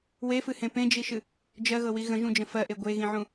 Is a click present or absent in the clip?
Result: absent